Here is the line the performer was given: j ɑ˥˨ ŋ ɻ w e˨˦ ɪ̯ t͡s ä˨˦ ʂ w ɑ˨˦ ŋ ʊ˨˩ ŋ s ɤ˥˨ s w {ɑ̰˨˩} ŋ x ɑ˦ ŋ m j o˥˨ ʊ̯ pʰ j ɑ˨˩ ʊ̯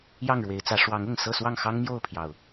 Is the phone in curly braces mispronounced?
yes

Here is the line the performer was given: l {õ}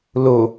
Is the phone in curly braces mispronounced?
yes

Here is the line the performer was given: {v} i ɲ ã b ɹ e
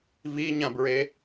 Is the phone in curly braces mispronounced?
no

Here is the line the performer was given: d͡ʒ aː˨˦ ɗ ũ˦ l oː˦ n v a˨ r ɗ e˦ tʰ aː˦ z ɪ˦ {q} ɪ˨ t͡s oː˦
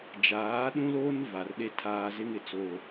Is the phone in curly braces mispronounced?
yes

